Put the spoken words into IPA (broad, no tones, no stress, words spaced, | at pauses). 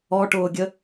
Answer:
ɔʈʊːɡʲə